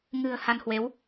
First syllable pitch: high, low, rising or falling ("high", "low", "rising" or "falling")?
low